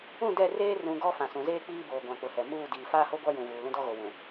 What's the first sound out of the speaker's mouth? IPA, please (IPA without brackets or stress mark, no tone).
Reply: ũ